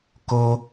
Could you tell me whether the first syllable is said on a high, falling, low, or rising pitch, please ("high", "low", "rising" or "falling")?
high